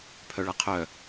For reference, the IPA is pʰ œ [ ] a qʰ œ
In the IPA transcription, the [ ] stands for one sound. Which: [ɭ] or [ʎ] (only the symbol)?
ɭ